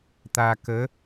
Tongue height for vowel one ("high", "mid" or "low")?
low